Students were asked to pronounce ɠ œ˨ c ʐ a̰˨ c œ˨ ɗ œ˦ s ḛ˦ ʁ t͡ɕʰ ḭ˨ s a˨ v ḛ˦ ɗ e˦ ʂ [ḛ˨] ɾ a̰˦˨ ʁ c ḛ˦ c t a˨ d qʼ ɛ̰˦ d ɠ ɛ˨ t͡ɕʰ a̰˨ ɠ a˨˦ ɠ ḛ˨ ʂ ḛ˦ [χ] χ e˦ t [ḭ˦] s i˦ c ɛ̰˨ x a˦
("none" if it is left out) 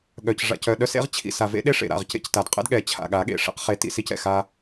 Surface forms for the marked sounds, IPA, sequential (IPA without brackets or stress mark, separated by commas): ḛ˨, q, ḭ˦